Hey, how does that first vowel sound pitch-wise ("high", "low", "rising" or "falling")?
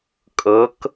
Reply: rising